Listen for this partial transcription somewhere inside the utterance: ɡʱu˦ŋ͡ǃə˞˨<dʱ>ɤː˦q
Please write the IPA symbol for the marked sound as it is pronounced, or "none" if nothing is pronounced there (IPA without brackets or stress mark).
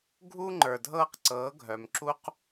dʱ